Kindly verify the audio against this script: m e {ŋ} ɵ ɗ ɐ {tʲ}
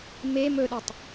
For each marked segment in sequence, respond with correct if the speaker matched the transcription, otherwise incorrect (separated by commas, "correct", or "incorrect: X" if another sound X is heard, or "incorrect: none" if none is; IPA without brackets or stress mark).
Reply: incorrect: m, incorrect: tˤ